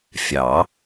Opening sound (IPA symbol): fʲ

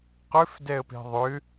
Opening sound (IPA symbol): q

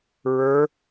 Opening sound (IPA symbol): ɹ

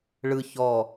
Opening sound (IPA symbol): ɭ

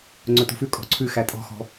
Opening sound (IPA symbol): ŋ͡ǀ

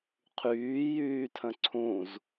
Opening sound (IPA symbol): qʰ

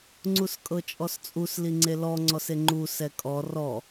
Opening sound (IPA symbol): ŋ͡ǀ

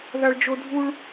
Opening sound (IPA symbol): ð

